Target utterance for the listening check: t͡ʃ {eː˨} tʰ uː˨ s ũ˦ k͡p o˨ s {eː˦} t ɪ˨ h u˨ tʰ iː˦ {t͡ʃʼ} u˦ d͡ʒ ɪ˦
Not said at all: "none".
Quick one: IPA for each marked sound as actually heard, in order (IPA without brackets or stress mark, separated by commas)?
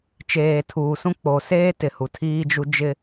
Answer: eː˨, eː˦, d͡ʒ